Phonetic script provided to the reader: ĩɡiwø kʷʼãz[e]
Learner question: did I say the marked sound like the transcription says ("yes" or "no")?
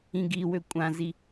no